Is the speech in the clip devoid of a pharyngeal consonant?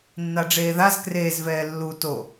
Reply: yes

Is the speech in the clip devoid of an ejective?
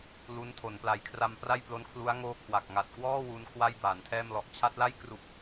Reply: yes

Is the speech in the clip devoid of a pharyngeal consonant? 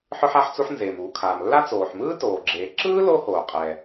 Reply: no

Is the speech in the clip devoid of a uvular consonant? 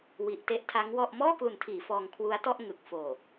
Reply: yes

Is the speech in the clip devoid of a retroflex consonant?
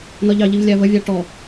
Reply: no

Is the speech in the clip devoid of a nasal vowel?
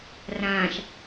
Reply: no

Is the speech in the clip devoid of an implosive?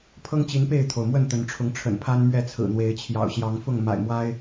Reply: yes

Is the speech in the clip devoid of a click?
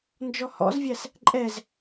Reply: no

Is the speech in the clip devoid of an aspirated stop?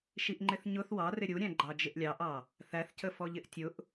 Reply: yes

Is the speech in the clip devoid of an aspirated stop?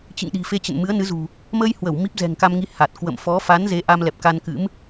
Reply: yes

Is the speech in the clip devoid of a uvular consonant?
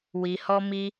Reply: yes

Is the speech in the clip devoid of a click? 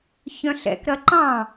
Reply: no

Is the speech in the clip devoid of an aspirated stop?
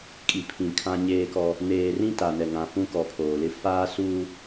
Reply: no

